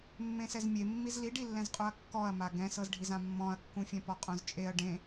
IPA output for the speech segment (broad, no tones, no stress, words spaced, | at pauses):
mːẽsɛzmʲe mːizliɖilːɛ̃z qʼoɐ̯kːɔɐ̯ma ɡɛ̃sɤzɖʱiz ãmːɔ̃ɐ̯kːũfʲɛ̃ pɔqʼõzt͡ʃʼeɐ̯ ɖẽ